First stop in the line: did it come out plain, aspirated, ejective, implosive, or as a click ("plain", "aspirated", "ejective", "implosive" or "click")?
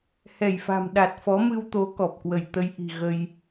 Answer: implosive